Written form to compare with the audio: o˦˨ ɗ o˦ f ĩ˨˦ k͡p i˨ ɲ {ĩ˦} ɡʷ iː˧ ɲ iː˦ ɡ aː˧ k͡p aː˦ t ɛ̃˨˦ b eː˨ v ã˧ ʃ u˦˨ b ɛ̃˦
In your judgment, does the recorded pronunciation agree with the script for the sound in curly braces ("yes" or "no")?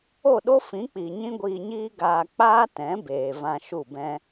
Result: yes